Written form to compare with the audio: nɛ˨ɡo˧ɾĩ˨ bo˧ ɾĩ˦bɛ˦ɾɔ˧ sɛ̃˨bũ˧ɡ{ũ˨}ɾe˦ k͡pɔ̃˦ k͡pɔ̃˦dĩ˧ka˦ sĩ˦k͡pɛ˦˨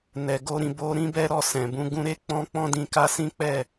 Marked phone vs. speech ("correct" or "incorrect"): incorrect